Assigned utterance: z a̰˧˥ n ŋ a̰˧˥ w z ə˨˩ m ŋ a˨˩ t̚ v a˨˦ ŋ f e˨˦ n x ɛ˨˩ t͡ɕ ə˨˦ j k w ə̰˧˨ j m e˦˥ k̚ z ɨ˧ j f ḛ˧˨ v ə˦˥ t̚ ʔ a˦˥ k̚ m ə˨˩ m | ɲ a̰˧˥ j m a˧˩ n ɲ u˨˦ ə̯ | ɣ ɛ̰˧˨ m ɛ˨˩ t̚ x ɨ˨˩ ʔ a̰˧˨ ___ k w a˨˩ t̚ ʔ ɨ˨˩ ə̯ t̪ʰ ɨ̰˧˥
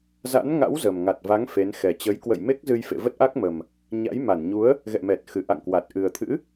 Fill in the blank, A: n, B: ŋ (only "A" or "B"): B